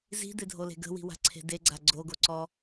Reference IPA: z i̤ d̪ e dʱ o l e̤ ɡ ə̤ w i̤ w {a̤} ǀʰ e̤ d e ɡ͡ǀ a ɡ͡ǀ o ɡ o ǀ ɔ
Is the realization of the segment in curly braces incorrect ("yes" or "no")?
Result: no